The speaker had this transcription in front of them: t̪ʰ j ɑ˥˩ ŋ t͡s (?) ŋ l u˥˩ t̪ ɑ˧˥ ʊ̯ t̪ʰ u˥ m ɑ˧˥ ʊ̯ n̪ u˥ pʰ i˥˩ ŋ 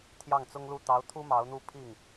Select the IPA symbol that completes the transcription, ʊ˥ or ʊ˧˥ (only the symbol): ʊ˥